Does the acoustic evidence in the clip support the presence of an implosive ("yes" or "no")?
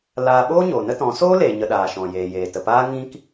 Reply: yes